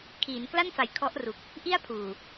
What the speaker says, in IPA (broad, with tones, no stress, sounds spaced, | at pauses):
kʰ iː˩˦ n k l a˥˩ n f a˩˦ j kʰ ɔ˦˥ ʔ r u˨˩ k̚ | ʔ i˥˩ a̯ pʰ uː˨˩